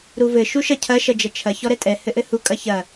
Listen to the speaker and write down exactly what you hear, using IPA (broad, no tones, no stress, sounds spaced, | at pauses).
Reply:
ɾ u v ɘ ʃ u ʃ ɐ cʰ ɐ ʃ ɐ d͡ʒ ɐ t͡ʃʰ ɐ ç ɔ ɾ ɛ tʼ ɛ h ɘ ʔ ɘ h u kʼ ɐ ç ɐ